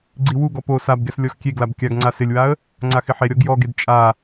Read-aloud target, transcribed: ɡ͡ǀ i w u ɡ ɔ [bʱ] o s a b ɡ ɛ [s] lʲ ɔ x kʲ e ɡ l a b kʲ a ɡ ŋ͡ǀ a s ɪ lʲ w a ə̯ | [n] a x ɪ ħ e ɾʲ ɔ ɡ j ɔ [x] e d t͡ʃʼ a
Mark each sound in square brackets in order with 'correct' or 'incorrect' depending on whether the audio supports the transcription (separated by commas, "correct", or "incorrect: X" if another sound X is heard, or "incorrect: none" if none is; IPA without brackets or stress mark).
incorrect: p, correct, incorrect: ŋ͡ǀ, incorrect: ɡ